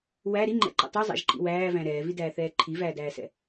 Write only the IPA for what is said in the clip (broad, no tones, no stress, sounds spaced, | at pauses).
w æ ɾ i ŋ͡ǃ ɛ̰ ǃ ɛ̰ tˤ u zˤ æ̰ ʒ ǃ ḭ w æː v æ̃ ɾ ɛː v i d æː θ ɛː ǃʰ i v æː d æː s ɛ̰